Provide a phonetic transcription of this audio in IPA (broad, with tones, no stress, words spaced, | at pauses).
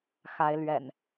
xa˨˦ɪ̯lɥɛ̰˨˩n